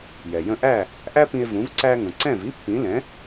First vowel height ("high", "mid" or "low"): mid